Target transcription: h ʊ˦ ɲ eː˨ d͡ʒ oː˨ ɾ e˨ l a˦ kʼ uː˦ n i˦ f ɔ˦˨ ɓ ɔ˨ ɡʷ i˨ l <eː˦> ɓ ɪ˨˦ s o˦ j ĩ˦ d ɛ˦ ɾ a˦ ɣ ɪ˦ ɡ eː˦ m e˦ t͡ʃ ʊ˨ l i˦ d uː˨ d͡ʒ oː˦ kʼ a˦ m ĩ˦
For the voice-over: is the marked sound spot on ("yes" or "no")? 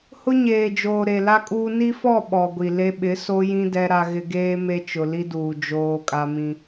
no